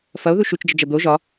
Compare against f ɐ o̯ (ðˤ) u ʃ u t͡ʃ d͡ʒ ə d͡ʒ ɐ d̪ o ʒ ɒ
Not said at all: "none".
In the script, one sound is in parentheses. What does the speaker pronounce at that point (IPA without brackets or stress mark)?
ð